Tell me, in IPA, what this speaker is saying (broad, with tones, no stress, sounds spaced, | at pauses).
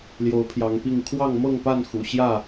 l j o˨˦ ʊ̯ pʰ j ɑ˨˦ ŋ p i˥˨ ŋ kʰ w ɑ˥˨ ŋ m ɤ˥˨ ŋ p a˥˨ n x ṵ˨˩ ɕ j ä˥˨